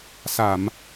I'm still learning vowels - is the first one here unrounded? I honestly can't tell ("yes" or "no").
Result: yes